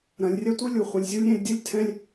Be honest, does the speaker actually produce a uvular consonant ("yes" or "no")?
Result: yes